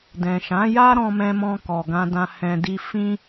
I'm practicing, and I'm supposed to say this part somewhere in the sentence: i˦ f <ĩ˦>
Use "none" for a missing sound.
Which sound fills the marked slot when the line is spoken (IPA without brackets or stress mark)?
ĩ˦